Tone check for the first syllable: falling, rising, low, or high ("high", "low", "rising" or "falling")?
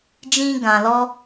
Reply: high